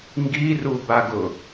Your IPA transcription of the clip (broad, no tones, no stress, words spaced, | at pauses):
ŋɡirubaɡʊ